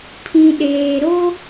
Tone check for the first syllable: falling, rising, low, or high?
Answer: low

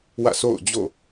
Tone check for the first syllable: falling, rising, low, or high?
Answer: falling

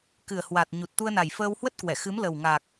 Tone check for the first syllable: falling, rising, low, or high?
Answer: low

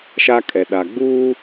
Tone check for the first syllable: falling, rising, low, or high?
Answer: high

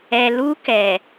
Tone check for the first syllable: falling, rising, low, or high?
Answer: low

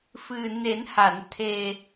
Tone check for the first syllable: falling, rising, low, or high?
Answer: low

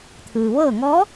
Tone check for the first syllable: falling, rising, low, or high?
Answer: low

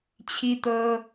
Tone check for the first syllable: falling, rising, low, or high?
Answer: high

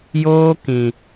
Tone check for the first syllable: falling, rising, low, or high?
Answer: high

